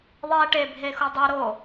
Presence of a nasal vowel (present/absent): absent